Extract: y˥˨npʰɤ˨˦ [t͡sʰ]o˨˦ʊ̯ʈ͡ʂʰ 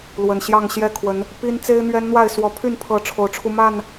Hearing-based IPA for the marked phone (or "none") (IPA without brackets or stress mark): ʈ͡ʂʰ